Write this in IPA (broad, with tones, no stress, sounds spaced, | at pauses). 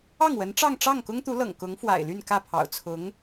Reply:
ɑ˥˩ ŋ w ə˧˥ n ʈ͡ʂ ɑ˥˧ ŋ ʈ͡ʂ ɑ˥˩ ŋ k ʊ˥ ŋ t̪ u˧˥ l ɤ̰˨˩ ŋ k ʊ˧˥ ŋ f w a̰˨˩ ɪ̯ l y˥˧ n k ä˥˩ pʰ ɑ̰˨˩ ʊ̯ t͡sʰ ʊ˧˥ ŋ